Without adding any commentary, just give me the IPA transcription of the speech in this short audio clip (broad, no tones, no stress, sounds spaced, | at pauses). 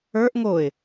ə˞ ʔ ŋ o ɪ̯